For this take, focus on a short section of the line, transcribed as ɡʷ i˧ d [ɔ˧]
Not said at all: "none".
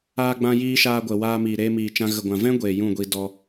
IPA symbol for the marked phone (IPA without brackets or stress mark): ɔ˧